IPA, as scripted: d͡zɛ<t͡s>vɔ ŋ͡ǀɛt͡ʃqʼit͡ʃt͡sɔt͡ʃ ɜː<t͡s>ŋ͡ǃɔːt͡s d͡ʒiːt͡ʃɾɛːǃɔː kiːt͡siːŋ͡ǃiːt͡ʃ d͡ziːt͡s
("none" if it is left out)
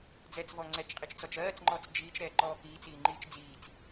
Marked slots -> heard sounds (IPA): t͡s, t͡s

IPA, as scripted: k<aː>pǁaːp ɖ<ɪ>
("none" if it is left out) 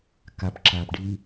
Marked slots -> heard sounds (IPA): a, i

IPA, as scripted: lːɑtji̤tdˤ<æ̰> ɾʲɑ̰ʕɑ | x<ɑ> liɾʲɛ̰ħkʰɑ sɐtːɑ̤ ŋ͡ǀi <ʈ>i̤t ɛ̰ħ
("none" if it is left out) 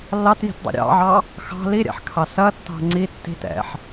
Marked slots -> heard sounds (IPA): ɛ̰, ɑ̤, tː

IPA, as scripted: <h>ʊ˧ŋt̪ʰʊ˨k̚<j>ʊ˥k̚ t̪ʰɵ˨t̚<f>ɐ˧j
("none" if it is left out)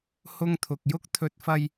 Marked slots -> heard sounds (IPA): h, j, f

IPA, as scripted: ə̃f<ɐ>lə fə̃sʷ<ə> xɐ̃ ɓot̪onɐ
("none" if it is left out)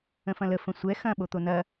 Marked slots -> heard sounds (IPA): ɐ̃, ɛ

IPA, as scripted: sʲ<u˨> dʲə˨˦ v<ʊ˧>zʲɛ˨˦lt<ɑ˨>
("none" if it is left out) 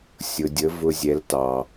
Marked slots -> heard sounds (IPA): ʊ˨, ʊ˧, ɑ˨

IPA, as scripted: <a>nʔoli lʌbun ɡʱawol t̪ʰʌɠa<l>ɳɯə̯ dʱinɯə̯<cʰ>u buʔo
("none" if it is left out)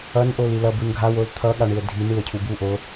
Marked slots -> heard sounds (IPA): ʌ, none, cʰ

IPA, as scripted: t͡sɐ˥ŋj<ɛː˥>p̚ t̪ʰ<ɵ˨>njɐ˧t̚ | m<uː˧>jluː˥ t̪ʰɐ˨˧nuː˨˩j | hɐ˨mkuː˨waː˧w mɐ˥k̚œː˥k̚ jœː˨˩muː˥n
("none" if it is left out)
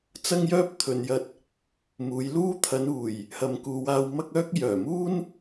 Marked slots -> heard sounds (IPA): œː˥, ɵ˨, uː˨˧

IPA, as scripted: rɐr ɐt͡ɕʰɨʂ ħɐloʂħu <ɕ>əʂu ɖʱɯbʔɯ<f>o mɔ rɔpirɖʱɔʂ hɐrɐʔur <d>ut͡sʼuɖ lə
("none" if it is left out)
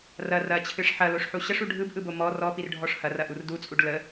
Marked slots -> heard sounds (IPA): ɕ, b, d

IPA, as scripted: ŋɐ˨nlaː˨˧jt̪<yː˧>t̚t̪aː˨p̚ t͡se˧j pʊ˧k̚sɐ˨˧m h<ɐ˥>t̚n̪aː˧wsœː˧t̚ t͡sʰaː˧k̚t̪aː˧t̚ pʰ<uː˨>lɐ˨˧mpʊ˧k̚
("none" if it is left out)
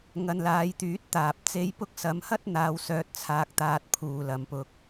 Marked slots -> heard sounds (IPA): yː˨˥, ɐ˥, uː˨

